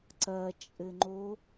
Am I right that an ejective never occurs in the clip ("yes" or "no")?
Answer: no